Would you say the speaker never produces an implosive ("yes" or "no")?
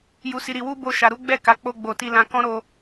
yes